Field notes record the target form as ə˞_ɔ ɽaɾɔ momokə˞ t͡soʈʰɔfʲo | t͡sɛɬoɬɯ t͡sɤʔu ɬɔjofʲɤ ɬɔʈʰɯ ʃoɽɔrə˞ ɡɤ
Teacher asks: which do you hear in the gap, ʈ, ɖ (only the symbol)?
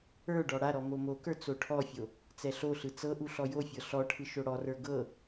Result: ɖ